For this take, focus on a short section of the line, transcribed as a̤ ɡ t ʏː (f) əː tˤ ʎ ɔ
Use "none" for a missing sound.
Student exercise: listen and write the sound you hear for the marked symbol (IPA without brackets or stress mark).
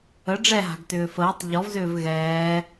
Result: f